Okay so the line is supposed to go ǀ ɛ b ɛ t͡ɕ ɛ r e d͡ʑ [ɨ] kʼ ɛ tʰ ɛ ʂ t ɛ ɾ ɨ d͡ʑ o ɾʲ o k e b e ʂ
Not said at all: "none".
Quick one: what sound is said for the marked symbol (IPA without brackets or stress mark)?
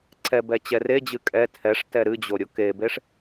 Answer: ɨ